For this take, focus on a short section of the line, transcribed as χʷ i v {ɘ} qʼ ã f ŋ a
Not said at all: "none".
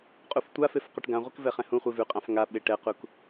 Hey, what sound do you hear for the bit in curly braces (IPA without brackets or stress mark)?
ʉ